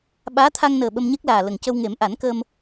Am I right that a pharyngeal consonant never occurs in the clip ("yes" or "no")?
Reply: yes